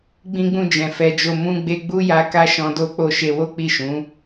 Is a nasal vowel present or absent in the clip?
present